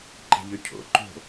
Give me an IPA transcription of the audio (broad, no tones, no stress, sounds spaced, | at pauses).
ǃ e̤ ʎ ø cʰ o̰ ǃ o̤